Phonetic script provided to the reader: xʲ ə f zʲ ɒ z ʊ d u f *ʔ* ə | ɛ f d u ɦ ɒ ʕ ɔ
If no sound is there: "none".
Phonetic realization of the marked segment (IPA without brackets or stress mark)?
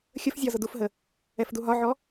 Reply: ɦ